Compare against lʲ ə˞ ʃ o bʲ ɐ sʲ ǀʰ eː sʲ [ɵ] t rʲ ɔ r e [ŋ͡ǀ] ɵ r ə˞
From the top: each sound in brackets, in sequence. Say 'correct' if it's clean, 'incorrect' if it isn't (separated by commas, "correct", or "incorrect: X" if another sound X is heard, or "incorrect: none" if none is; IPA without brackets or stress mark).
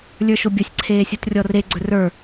incorrect: o, incorrect: ɡ͡ǀ